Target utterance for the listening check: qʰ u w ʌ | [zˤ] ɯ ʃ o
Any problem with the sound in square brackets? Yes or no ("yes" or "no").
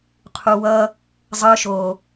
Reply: no